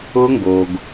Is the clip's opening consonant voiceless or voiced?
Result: voiced